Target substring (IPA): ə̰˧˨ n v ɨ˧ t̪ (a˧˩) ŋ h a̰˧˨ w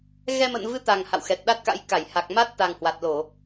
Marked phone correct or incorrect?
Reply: incorrect